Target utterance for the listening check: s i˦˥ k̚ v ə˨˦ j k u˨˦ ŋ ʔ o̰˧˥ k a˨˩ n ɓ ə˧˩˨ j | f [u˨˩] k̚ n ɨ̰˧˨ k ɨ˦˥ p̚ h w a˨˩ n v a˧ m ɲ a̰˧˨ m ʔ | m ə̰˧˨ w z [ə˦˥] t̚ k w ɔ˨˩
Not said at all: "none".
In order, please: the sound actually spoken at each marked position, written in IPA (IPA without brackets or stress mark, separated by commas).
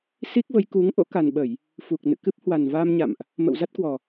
u˨˩, a˦˥